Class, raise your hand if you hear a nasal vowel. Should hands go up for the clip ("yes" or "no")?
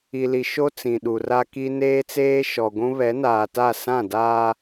yes